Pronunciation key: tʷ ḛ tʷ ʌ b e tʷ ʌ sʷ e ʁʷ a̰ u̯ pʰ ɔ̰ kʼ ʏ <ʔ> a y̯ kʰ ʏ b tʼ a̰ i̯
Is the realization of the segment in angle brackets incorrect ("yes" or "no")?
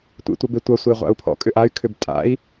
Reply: no